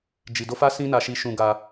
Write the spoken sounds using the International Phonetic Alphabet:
d͡ʒ i˧ d o˦ f a˦ s ĩ˦ n a˧ ʃ i˧ ʃ ũ˧ ɡ a˧

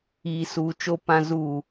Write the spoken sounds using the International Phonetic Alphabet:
iː˨ s uː˨ t͡ʃ o˦ p ã˦ z u˦˨

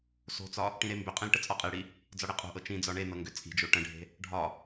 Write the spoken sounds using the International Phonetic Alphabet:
s o̤ t͡s ɒ | ʈ ĩ ɾ e m b ʏ qʼ ẽ l ʈ ə t͡sʼ ɒ qʼ i ɽ i | d͡z ɒ ɽ e qʼ o̤ ʔ ɤ t͡ʃ ĩ d͡z ɒ ɳ e n ɤ ŋ ɡ ʏ t͡sʼ i̤ d͡ʒ o ʈ ə̃ ɖʱ e̤ | ɖʱ ɒ

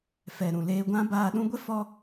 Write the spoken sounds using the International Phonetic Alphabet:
f ɛ˨ ɾ ũ˨ l eː˧ ɡʷ ã˦ b aː˧ ɗ ũ˦ ɡʷ ɛ˦ f ɔ˦

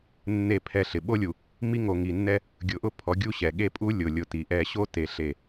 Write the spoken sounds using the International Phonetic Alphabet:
nː e˦˨ pʰ ɛ˦˨ ɬ ɪ˨ ɓ o˦ lʲ u˨ | m i˦ ŋ o˨ ŋ i˨ nː ɛ˦ | ɡʲ ʊ˨ ʔ ʊ˦˨ pʰ ɔ˨˦ ɡʲ u˦ ɕ ɛ˨ ɠ e˦ pʼ u˦ lʲ ʊ˨ lʲ ʊ˨ t i˨ ʔ ɛ˦ ɕ o˦ t e˨ ɬ e˦˨

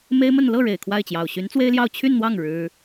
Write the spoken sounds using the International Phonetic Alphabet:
m e˥ ɪ̯ m ə˥˧ n l ɤ˥˩ ɻ e˨˩ ɪ̯ kʰ w a˥˩ ɪ̯ t͡ɕ j ɑ˨˩ ʊ̯ ɕ y˧˥ n t͡s w e˥ ɪ̯ l j ɑ˥˧ ʊ̯ t͡ɕʰ y˥˧ n n̪ w ɑ˥˩ ŋ ɻ ɻ̩˥

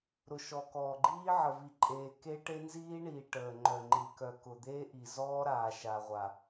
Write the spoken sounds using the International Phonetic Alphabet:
ɾ ʊ˨ ʃ ɔ˨ k ɔː˨ ɡ͡ǃ iː˦ ʕ ə˨ v i˨ ǃʼ eː˨ k e˦ ʈ e˦ n z iː˦ ɳ iː˨ ʈ əː˨ ŋ͡ǃ œ˨ ŋ͡ǃ i˨ k œ˨ k ʊ˨ d̪ eː˦ ʔ i˨ z ɔː˦ ɾ aː˨ ʃ a˨ ʁʷ a˨

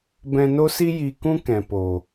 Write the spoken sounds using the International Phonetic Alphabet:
b ɛ̃˧ n o˦ s i˦ j i˧ k ũ˦ k ɛ̃˨ p o˨

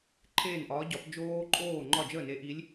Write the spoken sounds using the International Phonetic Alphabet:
ǃʰ eː˥˩ n ʔ ɒː˨˥ ɟ ɒ˨˥ p d͡ʒ oː˦˥ ǃʼ oː˥˩ ŋ͡ǃ ɒ˥˩ d͡ʒ əː˥˩ n e˨˥ ʔ i˨˥ lʲ

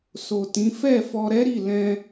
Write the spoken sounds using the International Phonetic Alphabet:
s o˨ t ĩ˨˦ f ɛ˦˨ f ɔ˧ ɾ ɛ˦ ɾ i˦˨ l ɛ̃˧

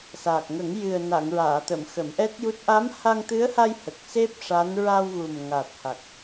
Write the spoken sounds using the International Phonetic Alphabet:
s aː˨˩ k̚ ŋ ə˨˩˦ ŋ j ɨ˨˩ ə̯ n a˨˩˨ ŋ ɹ aː˨˩˨ t̪ ə˨˩˨ m x ə˨˩˦ m ʔ ɛ˦˥ t̚ j u˦˥ t̚ ʔ a˧˥ m h a˧ ŋ t̪ ɨ˧˥ ə̯ h a˧ j h ə˨˩ k̚ s e˦˥ p̚ ʂ a˧˥ n ɹ a˧ w ɣ u˨˩ m ŋ a˨˩ t̚ h a˨˩ k̚

